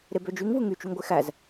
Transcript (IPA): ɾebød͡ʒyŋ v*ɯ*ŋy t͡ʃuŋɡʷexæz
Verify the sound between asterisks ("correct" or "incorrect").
correct